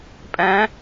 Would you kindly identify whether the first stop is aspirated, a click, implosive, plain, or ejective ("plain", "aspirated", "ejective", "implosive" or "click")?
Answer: ejective